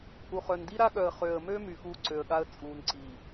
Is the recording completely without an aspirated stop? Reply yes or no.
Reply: yes